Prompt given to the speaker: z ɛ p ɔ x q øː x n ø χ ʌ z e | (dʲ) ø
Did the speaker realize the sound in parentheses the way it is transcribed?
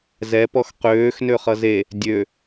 yes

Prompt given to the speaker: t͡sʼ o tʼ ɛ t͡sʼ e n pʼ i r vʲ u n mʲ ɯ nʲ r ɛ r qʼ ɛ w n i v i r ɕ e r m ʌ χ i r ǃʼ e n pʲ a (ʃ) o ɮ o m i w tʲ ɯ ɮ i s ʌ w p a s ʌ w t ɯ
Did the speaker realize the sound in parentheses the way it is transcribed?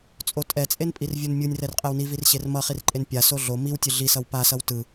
no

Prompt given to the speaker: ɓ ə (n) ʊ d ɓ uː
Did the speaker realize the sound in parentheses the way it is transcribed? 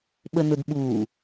yes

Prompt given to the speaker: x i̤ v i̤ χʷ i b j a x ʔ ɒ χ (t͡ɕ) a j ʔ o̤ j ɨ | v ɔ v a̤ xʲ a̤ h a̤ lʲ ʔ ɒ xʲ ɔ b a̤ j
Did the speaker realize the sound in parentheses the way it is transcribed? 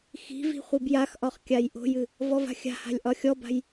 no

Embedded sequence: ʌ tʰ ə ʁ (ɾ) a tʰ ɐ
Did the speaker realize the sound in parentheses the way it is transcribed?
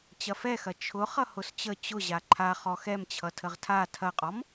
no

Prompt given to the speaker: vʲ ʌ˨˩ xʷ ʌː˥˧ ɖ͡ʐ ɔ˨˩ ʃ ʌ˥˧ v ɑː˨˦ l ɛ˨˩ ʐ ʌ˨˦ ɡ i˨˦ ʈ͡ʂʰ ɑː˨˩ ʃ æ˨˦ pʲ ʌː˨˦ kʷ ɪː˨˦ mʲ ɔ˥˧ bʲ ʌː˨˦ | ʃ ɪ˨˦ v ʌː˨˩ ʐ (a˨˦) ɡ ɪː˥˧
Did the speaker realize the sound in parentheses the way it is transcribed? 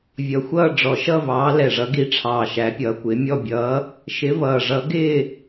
no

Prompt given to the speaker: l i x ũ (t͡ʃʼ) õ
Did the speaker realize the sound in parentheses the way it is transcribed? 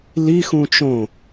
no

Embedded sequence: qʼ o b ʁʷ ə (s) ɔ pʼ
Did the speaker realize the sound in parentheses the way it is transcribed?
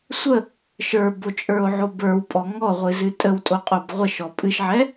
no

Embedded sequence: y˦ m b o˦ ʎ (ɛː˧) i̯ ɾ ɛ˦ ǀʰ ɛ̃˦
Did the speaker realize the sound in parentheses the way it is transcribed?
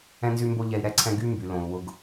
no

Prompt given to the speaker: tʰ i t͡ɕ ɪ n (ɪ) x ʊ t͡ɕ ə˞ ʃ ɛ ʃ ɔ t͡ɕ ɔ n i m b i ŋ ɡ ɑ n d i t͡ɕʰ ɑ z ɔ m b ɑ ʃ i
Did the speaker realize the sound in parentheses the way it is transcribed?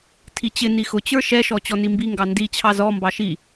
no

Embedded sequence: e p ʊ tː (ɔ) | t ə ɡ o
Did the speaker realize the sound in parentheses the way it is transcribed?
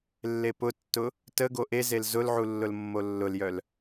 no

